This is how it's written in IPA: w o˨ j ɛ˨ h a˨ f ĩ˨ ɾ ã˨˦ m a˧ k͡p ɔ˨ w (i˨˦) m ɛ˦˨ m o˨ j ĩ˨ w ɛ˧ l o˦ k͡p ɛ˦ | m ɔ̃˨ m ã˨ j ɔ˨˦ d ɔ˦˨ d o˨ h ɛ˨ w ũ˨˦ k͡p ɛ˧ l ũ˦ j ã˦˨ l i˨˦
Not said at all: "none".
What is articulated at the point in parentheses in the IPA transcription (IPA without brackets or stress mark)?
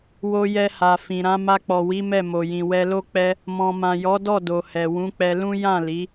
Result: i˨˦